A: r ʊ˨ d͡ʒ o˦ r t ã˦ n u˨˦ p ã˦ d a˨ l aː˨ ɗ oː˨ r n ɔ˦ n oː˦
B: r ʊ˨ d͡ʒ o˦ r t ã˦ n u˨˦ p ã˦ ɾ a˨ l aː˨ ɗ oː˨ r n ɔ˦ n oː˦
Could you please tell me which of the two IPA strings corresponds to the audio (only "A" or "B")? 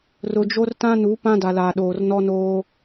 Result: A